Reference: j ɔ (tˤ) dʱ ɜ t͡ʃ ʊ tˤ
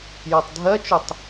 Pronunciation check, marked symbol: correct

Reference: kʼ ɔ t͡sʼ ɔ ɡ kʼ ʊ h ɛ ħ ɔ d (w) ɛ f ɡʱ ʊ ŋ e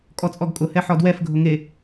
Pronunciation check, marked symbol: correct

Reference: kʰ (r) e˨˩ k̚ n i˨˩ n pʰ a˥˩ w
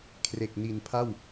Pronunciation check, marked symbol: correct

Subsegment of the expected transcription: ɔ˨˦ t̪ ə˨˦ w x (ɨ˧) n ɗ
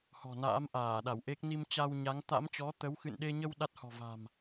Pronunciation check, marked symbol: incorrect: ɨ̰˧˨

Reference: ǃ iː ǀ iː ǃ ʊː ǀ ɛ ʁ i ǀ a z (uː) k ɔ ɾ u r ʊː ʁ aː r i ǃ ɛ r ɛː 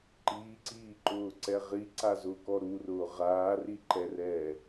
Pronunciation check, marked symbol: incorrect: ʊː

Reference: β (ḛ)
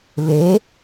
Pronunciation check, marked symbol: incorrect: e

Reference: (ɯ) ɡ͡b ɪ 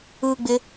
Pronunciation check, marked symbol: correct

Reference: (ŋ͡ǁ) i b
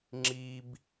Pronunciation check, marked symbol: correct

